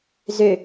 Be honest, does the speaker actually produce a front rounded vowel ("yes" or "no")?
yes